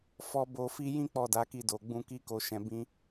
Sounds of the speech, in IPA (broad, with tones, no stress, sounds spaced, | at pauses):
f ɔ˧ b o˨ f i˧ j ĩ˦ k͡p ɔ˦˨ d a˨˦ k i˦˨ d o˨ ɡ͡b ũ˧ k i˦ k o˧ ʃ ɛ̃˧ b ĩ˦